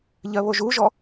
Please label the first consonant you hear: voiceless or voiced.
voiced